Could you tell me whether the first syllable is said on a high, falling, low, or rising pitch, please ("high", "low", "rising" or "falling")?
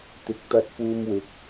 low